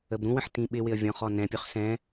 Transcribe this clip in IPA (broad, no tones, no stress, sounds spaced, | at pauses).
ə b ɾ ũ w ə̃ ħ t ĩ ɓ ɪ w ɪ ə̯ vʲ ɔ̃ χ ɔ n ɛ̃ pʲ ʊ χ s ɛ̃